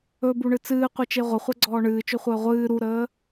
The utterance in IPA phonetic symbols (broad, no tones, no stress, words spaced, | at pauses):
ɵbuɳɨ t͡sɨːqʷɨt͡ʃe ʁʷəχʷɛɡ͡ǀɔː ɳɨːt͡ʃɵχʷəː ʁʷɨː ɾuɾəː